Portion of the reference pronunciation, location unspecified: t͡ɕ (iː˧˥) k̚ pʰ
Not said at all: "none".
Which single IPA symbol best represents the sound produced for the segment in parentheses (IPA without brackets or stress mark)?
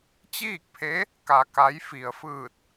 iː˥˨